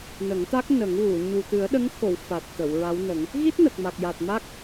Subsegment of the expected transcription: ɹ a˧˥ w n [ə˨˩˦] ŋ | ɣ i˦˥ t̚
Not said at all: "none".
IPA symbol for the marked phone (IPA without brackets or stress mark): ə˨˩˦